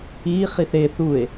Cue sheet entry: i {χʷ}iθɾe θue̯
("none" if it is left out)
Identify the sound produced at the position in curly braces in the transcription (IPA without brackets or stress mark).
χ